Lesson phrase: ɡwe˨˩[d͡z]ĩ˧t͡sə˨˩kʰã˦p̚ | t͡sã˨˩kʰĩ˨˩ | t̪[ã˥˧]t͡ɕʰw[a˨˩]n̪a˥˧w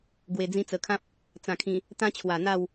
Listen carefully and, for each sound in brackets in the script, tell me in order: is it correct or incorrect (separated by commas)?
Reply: correct, incorrect, correct